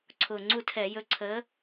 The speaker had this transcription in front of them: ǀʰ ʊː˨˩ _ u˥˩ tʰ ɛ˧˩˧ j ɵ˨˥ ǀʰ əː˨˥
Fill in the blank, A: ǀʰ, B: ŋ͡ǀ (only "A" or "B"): B